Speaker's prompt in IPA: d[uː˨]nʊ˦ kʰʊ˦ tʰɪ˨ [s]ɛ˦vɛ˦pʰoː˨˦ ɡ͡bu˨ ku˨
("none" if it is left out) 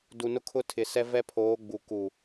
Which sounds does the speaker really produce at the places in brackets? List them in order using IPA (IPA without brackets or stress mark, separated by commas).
u˨, s